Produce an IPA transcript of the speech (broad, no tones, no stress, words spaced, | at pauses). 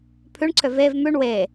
pʰʉɳǀʰø vev mʉɳ we